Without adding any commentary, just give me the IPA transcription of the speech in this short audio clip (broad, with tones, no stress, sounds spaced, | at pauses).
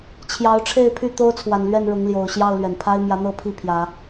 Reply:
t͡ɕʰ j ɑ˨˦ ʊ̯ ʈ͡ʂʰ e˥˨ ɪ̯ pʰ y˥˨ t̪ o˦ ʊ̯ t͡sʰ w a˨˩ n l ɥ ɛ˥˨ n ɻ ʊ˨˦ ŋ l j o˨˩ ʊ̯ ɕ j ɑ˥˨ ʊ̯ l ɥ ɛ˩ n pʰ a˦ ɪ̯ m j ä˨˦ n̪ ɤ˥˨ pʰ i˥˨ pʰ j ä˨˦